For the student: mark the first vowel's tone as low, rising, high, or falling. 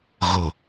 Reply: low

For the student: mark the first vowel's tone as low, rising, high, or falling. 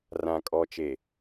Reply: low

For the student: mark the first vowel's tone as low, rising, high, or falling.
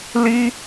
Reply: high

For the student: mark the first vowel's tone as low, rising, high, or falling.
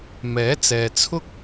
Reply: rising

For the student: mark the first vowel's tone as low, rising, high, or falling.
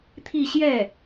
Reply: falling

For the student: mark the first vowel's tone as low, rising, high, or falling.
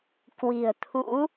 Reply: low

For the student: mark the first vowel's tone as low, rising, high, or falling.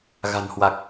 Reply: low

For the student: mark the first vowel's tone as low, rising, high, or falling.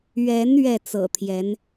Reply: rising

